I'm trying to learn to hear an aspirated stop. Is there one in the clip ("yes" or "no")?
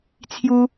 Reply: yes